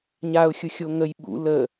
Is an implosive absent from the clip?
no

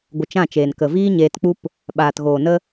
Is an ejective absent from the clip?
yes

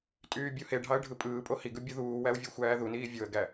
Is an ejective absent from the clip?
no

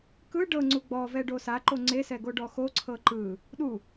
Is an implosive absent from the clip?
no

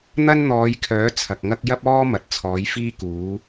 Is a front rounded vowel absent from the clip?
no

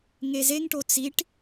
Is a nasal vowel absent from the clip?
yes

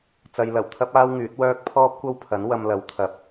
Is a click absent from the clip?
yes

